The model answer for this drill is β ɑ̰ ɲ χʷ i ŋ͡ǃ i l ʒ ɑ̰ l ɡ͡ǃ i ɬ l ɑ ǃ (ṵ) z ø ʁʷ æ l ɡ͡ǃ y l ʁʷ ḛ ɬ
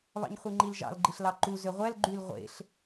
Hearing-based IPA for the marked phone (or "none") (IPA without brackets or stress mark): u